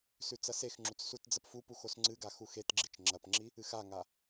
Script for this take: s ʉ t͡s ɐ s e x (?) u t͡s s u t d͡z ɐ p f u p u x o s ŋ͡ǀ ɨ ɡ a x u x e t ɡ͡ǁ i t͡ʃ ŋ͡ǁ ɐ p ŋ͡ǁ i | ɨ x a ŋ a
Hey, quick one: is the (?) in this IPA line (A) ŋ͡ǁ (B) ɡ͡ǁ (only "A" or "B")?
A